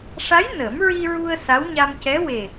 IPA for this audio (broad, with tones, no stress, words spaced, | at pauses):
ʂa˧˥j nə˨˩˦m ɹi˧ɹu˧ə̯ sa˧˥wɲa˧mcɛ˧˥ we˨˩